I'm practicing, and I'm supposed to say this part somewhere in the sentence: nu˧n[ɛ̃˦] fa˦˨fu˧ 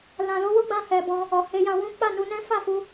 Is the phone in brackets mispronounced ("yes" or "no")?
no